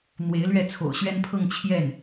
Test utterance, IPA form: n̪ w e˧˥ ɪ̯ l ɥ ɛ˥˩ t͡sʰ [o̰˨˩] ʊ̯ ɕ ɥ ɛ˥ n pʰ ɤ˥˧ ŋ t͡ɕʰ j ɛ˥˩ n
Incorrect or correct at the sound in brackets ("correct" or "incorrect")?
correct